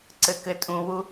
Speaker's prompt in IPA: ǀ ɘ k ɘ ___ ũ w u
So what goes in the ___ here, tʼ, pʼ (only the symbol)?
tʼ